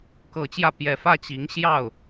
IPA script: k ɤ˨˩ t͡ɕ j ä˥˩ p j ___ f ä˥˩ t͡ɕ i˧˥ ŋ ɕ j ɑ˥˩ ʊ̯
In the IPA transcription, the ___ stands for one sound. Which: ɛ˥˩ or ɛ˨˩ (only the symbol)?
ɛ˨˩